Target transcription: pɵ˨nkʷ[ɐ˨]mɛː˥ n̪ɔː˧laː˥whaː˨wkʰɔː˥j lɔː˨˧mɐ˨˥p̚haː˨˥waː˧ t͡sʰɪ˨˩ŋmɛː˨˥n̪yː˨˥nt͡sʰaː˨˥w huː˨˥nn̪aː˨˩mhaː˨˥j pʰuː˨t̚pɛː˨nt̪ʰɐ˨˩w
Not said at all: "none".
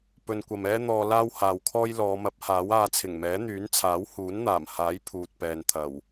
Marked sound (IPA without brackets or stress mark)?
ɐ˨